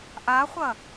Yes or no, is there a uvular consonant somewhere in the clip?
yes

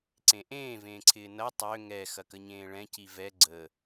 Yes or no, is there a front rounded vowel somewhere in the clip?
yes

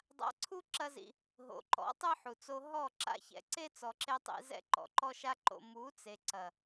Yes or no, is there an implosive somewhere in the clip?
no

